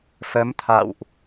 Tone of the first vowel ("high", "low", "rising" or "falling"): rising